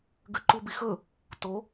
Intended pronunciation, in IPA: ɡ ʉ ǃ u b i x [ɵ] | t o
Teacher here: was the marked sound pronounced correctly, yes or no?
yes